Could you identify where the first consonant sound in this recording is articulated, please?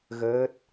velar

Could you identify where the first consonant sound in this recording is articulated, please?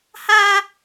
glottal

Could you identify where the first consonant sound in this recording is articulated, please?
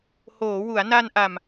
glottal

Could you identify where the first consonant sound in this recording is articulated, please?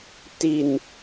alveolar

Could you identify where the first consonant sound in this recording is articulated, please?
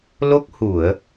alveolar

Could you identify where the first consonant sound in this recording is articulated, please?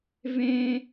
labial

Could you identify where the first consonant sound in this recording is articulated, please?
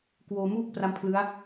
velar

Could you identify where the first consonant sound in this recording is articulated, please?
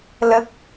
alveolar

